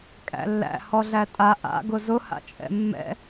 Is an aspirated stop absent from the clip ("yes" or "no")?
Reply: yes